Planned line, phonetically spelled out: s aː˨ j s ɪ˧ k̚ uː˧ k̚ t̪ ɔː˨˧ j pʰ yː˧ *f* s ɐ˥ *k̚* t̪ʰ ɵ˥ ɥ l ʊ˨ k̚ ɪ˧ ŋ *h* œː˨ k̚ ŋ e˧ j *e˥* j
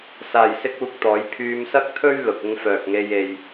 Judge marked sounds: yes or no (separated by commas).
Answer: no, yes, no, no